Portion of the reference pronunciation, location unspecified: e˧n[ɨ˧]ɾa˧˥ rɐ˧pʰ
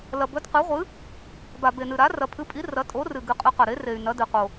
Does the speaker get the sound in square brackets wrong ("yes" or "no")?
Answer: no